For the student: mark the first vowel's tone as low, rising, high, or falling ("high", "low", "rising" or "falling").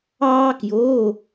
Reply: high